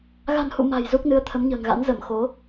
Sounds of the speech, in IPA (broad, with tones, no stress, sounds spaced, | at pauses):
ɣ a̤˨˩ n h ṵ˧˨ m a̤˨˩ j z u˦˥ k̚ n ɨ˧ ə̯ t̪ʰ ə˨˦ m ɲ ə̤ː˨˩ ŋ ɣ a̰˧˥ n z ə˧˩ m x o˨˦